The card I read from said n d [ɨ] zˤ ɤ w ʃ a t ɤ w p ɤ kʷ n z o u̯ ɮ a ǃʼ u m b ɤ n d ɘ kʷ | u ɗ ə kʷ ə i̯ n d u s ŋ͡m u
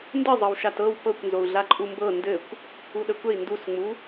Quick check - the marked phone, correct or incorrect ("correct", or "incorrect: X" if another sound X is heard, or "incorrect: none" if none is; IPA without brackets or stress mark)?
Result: correct